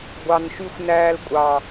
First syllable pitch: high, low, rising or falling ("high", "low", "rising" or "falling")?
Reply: low